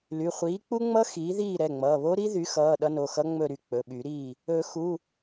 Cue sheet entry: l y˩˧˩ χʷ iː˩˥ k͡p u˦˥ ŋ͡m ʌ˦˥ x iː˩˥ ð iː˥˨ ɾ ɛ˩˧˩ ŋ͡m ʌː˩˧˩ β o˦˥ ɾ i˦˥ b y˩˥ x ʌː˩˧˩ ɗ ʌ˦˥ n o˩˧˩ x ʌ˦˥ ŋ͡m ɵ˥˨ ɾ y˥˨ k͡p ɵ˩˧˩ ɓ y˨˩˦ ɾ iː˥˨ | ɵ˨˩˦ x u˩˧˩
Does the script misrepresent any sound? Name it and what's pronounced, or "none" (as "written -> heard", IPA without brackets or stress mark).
b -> ð